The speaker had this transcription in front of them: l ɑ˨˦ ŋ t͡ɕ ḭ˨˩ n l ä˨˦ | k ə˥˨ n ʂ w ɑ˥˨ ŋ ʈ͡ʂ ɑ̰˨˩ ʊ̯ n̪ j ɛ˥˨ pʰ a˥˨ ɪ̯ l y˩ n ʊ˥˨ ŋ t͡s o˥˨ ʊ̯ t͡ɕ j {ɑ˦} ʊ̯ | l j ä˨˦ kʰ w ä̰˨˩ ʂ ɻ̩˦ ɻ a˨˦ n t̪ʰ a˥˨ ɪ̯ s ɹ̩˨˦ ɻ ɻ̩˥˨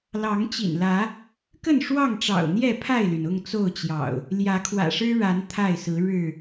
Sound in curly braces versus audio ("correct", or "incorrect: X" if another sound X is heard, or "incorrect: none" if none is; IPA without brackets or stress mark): incorrect: ɑ̰˨˩